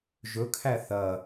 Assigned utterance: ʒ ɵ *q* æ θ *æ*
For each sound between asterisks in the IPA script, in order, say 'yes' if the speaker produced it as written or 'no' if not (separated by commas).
no, no